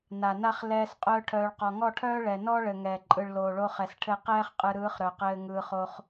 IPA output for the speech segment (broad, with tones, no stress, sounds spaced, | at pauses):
n a˨ n a˦ χ l ɛː˧ s qʼ œː˦ ʈʰ œː˧ ɭ q ɔ˨ ŋ ɔ˦˨ ʈʰ œː˦ ɭ ɛ˨ n ɔ˦ ɭ ɘ˨ ŋ ɛ˨ ǃʼ ɯ˨ ɭ l oː˨ ɭ o˦ χ ɛ˨ s ʈʰ ɘ˦˨ q ɛː˦ χ qʼ ɯ˨ ɾ ɯː˨˦ χ ɾ œ˨ q ɘː˧ ŋ ɯː˧ χ o˦ χ